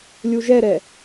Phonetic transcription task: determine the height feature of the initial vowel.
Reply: high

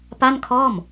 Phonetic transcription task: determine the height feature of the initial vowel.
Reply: low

